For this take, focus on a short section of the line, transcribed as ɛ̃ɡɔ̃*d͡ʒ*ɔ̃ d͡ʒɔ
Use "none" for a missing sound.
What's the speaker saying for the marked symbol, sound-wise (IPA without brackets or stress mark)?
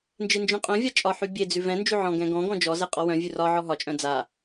ɡ